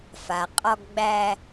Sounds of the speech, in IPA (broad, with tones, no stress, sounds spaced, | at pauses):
f a˩ qʼ ɔ˧ ɡ ɡ͡b æ˧